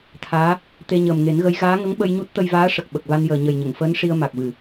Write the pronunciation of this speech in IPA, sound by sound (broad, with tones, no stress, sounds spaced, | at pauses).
t̪ʰ aː˧˥ | t̪ e˧ ɲ əː˨˩ m ŋ e˨˩˦ n ɣ ə˧˥ j ɣ aː˧˥ ŋ ə˧˥ ŋ ɓ ə˧ j ɲ u˦˥ t̚ t̪ ə˧ j v aː˧˥ ʂ ə˨˩ k̚ ɓ ə˨˩ k̚ v a˧ n j əː˨˩ ɲ ə˨˩ j ɲ ə˨˩˨ ŋ f əː˧˥ n ʂ i˧ ə̯ m a˨˩ k̚ v ɨ˨˩˨